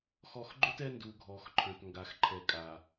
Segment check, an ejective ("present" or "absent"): present